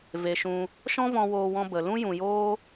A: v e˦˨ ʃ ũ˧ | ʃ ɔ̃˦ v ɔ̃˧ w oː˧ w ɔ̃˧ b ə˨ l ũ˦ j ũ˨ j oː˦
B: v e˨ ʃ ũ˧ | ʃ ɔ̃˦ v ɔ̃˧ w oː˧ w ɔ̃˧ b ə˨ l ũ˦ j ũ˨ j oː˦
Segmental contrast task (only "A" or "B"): B